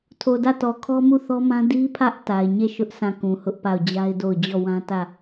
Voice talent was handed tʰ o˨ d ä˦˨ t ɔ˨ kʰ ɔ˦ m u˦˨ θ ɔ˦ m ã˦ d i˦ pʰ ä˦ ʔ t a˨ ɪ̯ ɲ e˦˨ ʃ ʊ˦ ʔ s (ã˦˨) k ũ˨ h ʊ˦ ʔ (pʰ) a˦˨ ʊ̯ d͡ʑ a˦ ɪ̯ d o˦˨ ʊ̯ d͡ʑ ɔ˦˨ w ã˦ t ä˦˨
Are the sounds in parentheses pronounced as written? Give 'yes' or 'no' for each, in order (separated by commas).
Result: yes, no